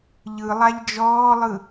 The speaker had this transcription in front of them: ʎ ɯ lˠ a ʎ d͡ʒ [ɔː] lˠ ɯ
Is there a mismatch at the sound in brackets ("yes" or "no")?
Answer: no